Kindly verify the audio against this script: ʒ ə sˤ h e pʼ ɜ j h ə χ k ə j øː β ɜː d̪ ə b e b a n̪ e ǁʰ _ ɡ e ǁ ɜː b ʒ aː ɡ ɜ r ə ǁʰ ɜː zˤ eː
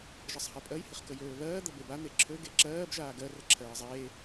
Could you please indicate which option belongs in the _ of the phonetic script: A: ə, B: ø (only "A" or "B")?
B